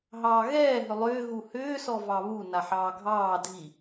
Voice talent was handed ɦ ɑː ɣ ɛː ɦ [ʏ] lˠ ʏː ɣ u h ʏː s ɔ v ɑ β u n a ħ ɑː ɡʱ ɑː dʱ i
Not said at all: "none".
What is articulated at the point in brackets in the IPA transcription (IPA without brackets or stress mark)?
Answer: ʏ